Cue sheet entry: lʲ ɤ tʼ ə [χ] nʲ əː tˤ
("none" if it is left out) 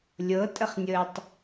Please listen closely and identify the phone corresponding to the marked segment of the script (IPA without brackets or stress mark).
χ